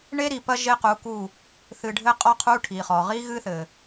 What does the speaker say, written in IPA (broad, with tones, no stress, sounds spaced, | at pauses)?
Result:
ɳ e˦ ɾ i˨ p ɐ˦ ʒ e˦ q u˨˦ k u˦˨ | θ ɨ˨ ɖʱ ɘ˦ qʼ ɔ˦ qʰ u˦ ʈʰ i˨ χ ɔ˨ ʁ i˦ ɣ ɨ˦ θ ɘ˨